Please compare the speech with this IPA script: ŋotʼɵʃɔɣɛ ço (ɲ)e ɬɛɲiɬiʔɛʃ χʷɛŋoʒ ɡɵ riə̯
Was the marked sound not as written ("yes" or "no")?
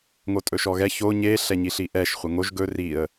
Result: no